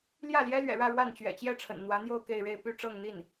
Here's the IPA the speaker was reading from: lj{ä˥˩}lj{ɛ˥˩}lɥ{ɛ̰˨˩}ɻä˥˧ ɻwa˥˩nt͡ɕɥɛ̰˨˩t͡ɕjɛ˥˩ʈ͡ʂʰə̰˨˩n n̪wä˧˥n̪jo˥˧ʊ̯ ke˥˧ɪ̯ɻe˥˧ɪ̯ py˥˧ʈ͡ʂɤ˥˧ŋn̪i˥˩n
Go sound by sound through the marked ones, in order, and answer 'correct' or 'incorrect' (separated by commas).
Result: correct, incorrect, correct